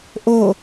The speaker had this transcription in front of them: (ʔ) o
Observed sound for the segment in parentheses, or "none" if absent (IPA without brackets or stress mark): ʔ